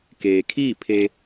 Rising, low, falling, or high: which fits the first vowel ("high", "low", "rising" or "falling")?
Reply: low